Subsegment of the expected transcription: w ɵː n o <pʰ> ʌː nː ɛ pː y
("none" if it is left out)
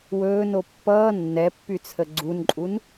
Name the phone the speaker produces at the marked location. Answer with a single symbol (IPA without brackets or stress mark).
pː